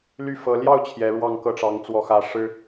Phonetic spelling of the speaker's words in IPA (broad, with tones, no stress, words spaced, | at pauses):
ly˥˩ fɤ˧˥ ljɑ˥˩ʊ̯ t͡ɕʰjɛ˧˥ɻwɑ˥˧ŋ kɤ˥˩ʈ͡ʂɑ˧˥ŋ t͡swɔ˧˥xä˧˥ ʂɻ̩˥